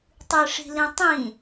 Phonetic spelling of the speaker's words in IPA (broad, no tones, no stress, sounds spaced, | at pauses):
tˤ ɨ ʂ i̤ l ĩ tˤ ĩ